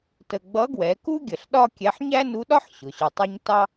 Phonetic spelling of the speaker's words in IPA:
t ə˧ ɡ͡b ʌ˧˥ ɡ w ɛ˩˧ k u˥ ɡʲ ə˩ ɬ ɗ ɒ˥ kʲ ɛ˧˥ ħ ɲ æ˥ n u˧˥ ɗ ɒ˥ ħ ɕ ʊ˩˧ ɕ ʊ˧ tˤ i˥ ɲ t ɑ˥

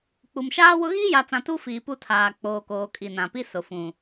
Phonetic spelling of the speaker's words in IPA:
k͡p u˨ m ʃ aː˦ w ʊ˦ ɣ iː˦ j a˨ t͡s ã˨ t u˦ f iː˨ p u˦ tʰ aː˨ k͡p oː˨ k oː˨ kʼ i˨ n ã˨ p i˦ s ʊ˨ f ũ˨

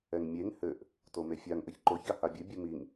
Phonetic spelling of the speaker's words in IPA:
ɛ ŋ mʲ e ŋ h ɘ ʔ | t o m e fʲ a ŋ ʔ ɘ ç ǃ o ç a h a bʲ ɘ bʲ ɘ m i ŋ

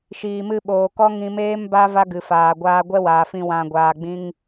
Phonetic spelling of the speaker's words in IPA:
ʃ iː˨ m ɨ˧ ɓ oː˨ k ɔ˦ ŋ ĩ˧ m eː˦ m b a˦ v a˦ ɡ ɨ˨ f aː˨ ɡʷ aː˧ ɡʷ ɛ˦ w aː˨ f ĩ˧ w ã˨ ɡʷ aː˨ ɡ͡b ĩ˧ ŋ

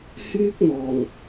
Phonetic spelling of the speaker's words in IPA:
h yː˥ k̚ n̪ ɔː˨˩ ŋ

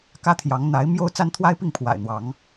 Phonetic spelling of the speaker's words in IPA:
k ä˦ t̪ʰ j ɑ˨˦ ŋ n̪ a˨˦ ɪ̯ m j o˦ ʊ̯ t͡s a˦ n t̪ʰ w a˦ ɪ̯ p i˥˨ ŋ pʰ w a̰˨˩ ɪ̯ n̪ w ɑ˨˦ ŋ

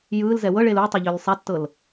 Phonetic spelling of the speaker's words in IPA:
j ɯː l z ɛ w ɤ ɭ e l u tˤ ɯ ʎ ʏː l sˤ a tː ɤ l

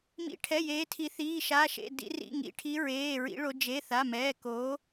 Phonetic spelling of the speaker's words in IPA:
m ḭ˩˧ ʈʰ ɛ˩˧˩ j eː˩˧ tʰ i˩˧ θ iː˩˧˩ ʃ a˩˧˩ ʃ ḛ˩˧˩ d ḭ˩˧ r ḭ˩˧˩ ŋ ḭ˩˧ ʈʰ i˩˧ ɹ eː˩˧˩ ɹ ḭ˩˧ ɭ o˩˧ d͡ʒ e˩˧˩ θ a˩˧˩ m ɛː˩˧˩ k oː˩˧

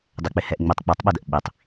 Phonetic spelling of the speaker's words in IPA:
dˤ ɛ k͡p ɪ h ɛ ʔ ŋ͡m i tˤ k͡p ə˞ tˤ ɓ ɛ d ə ʔ ɓ i tˤ

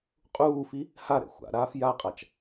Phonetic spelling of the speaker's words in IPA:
qʼ uː f i | h a ɾ ɛ̰ xʷ a̰ ɾ aː f j a qʼ a t͡ʃ

